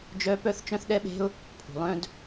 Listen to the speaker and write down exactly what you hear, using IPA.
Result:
d͡ʒ œ˥ p œ˥ θ t͡ʃ œ̃˥ θ ɗ ɛ˥ ɓ e̤˥ ʊ̯ | pʰ ṳ˩ lˠ œ̃˥ d

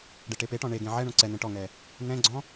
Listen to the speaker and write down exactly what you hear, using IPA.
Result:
ɖ e ʈ e p e ʈ ɔ̃ ɳ e ɡ ẽ ʕ ɛ ɳ õ ǀ ɛ n̪ ẽ ʈ ɔ ŋ ɛ | n ɛ̃ ɡ͡ǀ ɔ̃

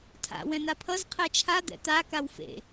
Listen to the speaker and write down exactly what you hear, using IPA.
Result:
tʰ a̰ w ɛ̃ n̪ a pʰ ʌ z qʰ ɛ t͡ʃʰ a d̪ ɛ̰ t̪ a k a w f ḛ

